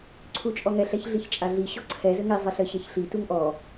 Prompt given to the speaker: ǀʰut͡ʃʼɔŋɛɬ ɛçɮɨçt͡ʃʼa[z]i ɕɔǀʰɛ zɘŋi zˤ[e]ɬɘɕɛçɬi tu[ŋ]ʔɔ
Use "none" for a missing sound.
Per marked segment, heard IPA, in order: ɮ, ɨ, ŋ

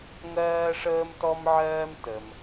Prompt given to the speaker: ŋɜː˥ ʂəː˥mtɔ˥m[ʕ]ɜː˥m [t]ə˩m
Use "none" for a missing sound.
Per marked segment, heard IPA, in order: ʕ, t

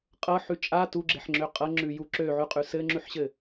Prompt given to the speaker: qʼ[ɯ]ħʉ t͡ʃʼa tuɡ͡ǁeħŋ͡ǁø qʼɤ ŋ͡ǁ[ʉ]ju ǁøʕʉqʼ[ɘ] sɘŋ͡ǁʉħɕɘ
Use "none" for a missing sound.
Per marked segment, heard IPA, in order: ɤ, ʉ, ʉ

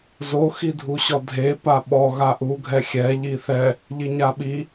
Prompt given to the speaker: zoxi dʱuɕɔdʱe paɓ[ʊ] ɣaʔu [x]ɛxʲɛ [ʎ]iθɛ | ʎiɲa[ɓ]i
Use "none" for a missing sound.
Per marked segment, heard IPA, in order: ɔ, ɡʱ, ʎ, ɓ

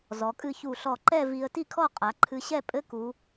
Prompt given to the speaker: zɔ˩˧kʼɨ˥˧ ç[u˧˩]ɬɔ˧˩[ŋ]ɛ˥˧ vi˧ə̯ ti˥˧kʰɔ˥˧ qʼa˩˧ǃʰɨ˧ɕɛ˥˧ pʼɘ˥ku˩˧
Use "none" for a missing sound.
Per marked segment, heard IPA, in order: u˧˩, ǃ

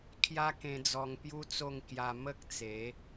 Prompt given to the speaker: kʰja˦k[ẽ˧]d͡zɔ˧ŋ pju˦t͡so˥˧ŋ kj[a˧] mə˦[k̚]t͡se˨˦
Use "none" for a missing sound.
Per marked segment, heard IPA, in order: ẽ˧, a˧, k̚

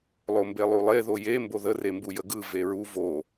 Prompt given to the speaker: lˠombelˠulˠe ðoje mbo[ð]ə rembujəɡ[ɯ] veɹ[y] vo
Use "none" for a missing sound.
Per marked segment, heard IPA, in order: ð, ɯ, u

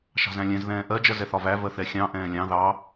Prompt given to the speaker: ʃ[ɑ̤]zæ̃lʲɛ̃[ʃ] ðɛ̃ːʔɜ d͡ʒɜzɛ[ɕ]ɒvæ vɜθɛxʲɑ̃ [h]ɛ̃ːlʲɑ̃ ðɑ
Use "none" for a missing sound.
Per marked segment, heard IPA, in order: ɑ̤, z, θ, ʔ

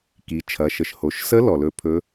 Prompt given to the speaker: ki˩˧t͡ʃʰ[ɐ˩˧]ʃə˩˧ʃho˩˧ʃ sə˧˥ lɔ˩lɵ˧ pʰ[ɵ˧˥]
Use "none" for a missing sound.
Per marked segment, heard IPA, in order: ɐ˩˧, ɵ˧˥

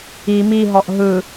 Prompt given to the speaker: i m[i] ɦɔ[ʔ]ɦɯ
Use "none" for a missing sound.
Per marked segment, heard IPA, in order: i, ʔ

